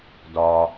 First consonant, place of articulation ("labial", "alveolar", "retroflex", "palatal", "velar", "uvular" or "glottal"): alveolar